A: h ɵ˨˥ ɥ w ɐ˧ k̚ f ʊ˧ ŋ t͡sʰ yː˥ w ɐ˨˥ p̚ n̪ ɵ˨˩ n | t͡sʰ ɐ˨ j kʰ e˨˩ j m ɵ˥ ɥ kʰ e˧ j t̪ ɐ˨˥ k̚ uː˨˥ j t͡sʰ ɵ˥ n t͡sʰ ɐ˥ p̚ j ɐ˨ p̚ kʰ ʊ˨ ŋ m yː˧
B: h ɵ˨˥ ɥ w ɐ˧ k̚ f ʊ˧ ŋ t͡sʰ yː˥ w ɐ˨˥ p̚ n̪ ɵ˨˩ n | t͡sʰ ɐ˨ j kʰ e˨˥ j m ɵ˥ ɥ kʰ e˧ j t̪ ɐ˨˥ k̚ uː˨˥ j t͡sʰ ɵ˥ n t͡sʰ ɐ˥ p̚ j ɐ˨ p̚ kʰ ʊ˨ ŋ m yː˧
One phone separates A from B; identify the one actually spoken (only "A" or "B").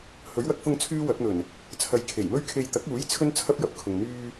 A